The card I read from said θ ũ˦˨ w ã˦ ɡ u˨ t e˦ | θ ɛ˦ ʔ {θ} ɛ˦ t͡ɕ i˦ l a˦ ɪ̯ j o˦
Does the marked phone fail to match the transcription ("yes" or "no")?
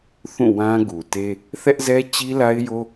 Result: yes